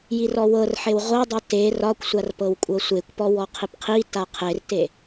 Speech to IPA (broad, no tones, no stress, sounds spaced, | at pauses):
j i r ɔ w ɤ r ħ e w ʁʷ ɤ dˤ ɤ t e r ɒ kʷ sʷ a r p ɤ w kʷʼ ɤ sʷ e kʷ p ɔ w ɔ qʰ i p qʰ i t a qʰ e r t e